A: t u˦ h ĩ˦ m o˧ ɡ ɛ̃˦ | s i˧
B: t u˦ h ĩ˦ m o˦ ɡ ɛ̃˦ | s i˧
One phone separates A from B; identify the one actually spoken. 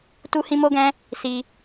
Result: B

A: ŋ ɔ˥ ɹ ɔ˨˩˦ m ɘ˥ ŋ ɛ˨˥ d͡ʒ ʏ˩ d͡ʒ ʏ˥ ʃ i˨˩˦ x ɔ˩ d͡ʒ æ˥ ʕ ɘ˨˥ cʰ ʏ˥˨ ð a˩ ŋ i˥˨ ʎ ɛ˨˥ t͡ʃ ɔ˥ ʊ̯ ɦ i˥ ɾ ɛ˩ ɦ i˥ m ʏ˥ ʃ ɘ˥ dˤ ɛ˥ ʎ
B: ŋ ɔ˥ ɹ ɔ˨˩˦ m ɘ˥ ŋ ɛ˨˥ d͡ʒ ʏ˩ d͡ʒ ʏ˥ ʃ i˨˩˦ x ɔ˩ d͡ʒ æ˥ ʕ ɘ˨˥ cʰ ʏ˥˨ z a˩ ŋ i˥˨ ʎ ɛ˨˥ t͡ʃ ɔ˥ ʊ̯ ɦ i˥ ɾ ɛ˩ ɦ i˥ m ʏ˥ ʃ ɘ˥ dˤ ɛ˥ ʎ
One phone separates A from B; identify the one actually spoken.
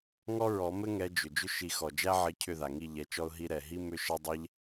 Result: A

